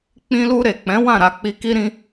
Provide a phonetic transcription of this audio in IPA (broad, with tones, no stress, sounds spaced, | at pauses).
k͡p ĩ˧ l u˧ ɾ e˨ k͡p ɛ̃˨˦ w ã˦˨ ɾ a˧ k͡p i˧ k i˦ ɾ ĩ˦